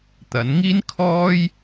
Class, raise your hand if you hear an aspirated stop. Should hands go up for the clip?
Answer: yes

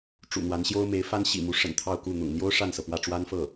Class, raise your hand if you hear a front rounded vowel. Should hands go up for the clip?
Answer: no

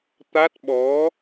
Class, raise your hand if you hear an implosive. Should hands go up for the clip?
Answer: yes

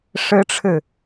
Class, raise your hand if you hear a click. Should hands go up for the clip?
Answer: no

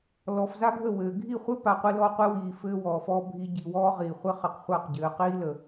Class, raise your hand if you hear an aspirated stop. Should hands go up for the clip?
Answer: no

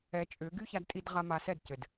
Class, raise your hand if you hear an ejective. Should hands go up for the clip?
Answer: yes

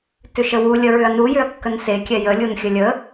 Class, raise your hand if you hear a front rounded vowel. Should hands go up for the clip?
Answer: yes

